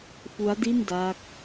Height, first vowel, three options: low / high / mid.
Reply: high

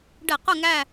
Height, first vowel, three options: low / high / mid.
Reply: mid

